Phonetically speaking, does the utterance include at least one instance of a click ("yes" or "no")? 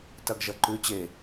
yes